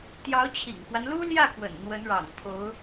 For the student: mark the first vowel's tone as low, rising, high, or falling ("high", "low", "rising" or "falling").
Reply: rising